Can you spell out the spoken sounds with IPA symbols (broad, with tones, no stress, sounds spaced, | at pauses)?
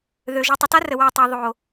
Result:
ð ø˨ ʒ ø˨ tˤ ə˨ t a˦ r ə˨ w a˨ tˤ ɛ˨ ðˤ o˨